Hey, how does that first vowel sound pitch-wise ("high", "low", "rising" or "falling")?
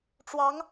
rising